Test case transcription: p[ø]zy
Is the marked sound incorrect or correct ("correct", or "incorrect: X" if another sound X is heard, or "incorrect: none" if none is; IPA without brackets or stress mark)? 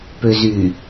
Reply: correct